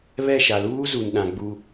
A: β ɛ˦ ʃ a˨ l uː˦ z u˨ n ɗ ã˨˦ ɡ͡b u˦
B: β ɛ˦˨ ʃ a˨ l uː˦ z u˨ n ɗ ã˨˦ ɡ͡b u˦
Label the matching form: B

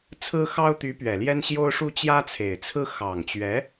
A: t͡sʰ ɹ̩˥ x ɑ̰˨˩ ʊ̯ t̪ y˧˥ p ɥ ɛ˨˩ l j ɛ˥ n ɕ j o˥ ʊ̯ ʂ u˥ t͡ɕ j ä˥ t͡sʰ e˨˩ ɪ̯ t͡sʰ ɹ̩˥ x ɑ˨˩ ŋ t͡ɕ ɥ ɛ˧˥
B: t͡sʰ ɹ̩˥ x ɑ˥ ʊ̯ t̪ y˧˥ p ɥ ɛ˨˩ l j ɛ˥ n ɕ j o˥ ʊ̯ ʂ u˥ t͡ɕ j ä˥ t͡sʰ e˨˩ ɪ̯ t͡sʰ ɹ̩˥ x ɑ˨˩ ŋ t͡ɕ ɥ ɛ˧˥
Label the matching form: B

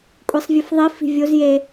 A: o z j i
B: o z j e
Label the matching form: B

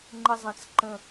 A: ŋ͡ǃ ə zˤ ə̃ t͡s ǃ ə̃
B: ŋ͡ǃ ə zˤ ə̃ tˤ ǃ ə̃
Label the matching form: A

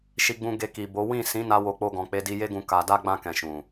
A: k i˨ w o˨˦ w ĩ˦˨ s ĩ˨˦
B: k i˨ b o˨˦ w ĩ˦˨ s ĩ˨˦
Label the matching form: B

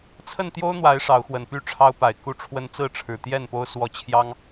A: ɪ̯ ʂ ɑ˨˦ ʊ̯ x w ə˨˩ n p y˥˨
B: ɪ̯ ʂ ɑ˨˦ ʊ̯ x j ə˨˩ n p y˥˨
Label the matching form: A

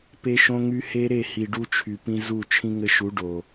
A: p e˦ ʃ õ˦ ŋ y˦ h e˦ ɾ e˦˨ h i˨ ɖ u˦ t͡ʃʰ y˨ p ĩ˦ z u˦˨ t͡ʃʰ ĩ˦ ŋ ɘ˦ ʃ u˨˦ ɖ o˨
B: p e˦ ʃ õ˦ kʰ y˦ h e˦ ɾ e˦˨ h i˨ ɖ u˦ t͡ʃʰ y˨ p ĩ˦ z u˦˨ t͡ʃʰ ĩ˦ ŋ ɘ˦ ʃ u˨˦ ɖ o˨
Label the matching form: A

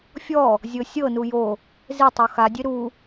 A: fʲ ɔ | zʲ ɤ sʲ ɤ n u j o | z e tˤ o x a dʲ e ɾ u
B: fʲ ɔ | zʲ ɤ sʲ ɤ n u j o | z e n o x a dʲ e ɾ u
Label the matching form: A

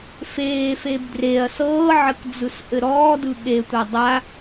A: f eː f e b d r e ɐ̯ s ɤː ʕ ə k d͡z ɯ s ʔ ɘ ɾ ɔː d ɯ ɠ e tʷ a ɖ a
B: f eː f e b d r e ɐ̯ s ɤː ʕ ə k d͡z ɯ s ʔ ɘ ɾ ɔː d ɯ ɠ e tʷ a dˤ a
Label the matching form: B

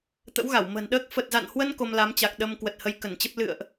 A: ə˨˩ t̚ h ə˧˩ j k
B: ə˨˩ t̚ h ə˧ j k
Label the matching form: B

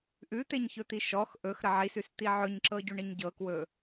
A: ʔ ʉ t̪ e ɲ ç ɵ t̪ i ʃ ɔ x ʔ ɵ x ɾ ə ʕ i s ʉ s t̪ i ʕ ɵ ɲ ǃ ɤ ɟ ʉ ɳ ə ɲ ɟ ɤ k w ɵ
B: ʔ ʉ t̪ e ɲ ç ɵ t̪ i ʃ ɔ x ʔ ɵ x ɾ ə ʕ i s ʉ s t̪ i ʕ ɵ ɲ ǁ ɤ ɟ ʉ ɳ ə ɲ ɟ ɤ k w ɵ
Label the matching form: B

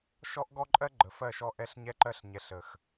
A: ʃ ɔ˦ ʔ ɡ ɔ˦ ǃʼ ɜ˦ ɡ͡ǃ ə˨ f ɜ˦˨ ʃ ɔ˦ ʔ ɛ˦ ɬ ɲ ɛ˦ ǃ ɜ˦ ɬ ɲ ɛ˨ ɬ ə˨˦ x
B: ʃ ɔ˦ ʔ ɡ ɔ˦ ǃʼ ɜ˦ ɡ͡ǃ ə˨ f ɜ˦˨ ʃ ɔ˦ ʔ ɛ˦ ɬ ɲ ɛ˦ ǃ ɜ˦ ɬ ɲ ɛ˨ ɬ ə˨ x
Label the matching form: B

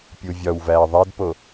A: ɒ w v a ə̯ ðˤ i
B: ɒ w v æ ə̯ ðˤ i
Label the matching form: B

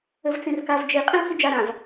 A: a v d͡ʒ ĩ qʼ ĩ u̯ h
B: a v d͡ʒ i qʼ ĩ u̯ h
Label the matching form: B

